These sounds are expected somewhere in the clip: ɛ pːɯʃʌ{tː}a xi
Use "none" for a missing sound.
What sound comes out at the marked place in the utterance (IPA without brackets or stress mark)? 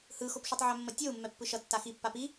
tː